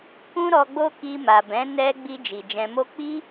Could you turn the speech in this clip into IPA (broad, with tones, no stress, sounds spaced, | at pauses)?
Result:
k ũ˦ ɾ ɔ˧ ɡ͡b o˦ k i˧ m a˨ b ɛ̃˨˦ n ɛ˧ ɡ͡b i˧ d͡ʒ i˨ d͡ʒ ɛ̃˧ m o˦ k͡p i˦